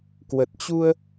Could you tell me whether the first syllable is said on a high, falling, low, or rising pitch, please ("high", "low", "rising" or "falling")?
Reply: low